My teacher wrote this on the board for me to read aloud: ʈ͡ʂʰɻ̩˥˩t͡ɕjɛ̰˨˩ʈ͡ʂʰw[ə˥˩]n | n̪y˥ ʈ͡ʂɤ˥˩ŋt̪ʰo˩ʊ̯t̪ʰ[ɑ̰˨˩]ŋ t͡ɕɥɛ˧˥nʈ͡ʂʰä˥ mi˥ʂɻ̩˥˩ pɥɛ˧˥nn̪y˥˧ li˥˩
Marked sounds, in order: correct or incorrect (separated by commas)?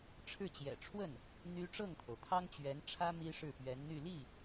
correct, incorrect